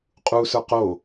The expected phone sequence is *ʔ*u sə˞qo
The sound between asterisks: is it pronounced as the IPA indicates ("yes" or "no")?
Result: no